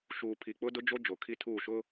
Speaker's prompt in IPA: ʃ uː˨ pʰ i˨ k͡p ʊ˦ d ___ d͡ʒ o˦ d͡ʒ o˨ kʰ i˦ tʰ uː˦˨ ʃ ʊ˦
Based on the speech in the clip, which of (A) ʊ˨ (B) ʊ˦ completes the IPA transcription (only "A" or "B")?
B